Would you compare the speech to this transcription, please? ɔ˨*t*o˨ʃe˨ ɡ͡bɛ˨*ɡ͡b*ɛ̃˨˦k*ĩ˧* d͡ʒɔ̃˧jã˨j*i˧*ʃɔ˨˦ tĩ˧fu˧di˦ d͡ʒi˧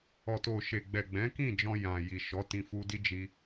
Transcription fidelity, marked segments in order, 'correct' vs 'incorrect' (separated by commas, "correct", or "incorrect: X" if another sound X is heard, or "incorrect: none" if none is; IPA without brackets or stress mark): correct, correct, incorrect: ĩ˦˨, incorrect: i˨